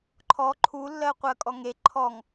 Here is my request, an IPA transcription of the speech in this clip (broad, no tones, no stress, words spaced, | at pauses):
ǃʰɔ ǃʰulːɜ qʷɜkʼɔŋe ǃʰɔŋ